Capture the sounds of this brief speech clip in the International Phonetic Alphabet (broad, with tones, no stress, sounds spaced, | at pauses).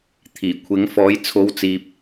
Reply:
t̪ʰ iː˨˩ kʷʰ ɪ˨˧ ŋ f ɔː˨˧ j t͡sʰ o˨˧ w t͡s iː˨ p̚